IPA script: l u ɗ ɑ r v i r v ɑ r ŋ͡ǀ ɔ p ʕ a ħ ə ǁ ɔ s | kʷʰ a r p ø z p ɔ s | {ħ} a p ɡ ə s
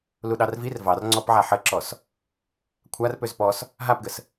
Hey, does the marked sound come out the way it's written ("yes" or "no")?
no